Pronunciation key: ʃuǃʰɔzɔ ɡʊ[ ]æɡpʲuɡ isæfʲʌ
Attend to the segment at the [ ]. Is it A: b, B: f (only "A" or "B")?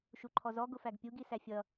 B